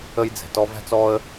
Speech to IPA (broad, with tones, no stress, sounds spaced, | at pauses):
ə˦ j d͡z ɛ̤˨ t ɔ˦ v æ̤˥ t͡s ɔ˥ ə̯